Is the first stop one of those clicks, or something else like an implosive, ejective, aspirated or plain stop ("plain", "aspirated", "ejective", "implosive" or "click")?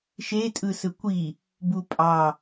ejective